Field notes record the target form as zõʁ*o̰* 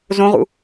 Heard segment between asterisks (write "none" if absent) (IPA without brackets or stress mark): ṵ